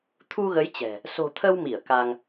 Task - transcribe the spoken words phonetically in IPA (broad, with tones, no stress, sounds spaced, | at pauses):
t̪ʰ u˧ ɣ ə˨˦ j t͡ɕ ɛ̤˨˩ | s o̤˨˩ t̪ʰ ə˧ w m i˧˩ ə̯ k a˧ ŋ